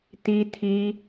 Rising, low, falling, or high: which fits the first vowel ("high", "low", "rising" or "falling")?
high